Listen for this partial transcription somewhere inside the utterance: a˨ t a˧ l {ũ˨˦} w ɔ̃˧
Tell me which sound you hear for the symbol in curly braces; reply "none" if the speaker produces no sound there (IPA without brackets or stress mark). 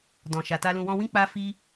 ũ˨